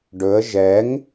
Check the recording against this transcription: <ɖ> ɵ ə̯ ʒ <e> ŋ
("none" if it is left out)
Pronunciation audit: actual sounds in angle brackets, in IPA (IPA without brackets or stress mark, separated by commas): ɖ, ɛ